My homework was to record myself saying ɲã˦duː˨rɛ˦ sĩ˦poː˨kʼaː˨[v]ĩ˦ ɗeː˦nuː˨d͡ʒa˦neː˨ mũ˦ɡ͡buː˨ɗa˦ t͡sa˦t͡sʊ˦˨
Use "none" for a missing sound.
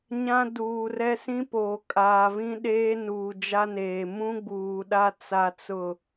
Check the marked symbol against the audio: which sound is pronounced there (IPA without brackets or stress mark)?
v